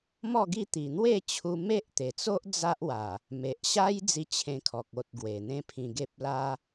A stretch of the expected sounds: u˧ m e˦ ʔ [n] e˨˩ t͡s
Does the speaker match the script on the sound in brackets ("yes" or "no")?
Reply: no